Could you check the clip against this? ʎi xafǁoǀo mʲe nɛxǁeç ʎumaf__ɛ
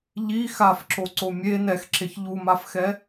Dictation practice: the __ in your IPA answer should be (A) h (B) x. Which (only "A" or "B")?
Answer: B